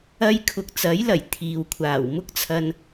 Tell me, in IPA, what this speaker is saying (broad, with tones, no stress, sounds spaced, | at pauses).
ɐ˥ j kʰ ʊ˨ k̚ t͡s ɐ˨˥ j l ɐ˨˩ j t̪ʰ iː˨ w kʷʰ aː˨˩ w m ʊ˥ k̚ t͡sʰ ɐ˧ n